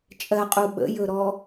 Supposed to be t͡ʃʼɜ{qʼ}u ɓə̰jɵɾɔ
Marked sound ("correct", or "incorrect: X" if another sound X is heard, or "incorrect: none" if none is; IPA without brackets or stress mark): correct